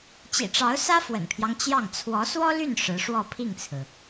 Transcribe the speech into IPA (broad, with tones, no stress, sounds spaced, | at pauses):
t͡ɕ ḭ˨˩ ʈ͡ʂ ɑ˧˥ ʊ̯ s ä˥ f w ə̰˨˩ n pʰ j ɑ˦ ŋ t͡ɕ j ɑ˥˩ ŋ t͡sʰ w ɔ˧˥ s w ɔ˥ l y˥˩ n ʂ ɻ̩˧˥ ʂ w ɔ˥˧ pʰ i˥˩ ŋ t͡sʰ ɹ̩˩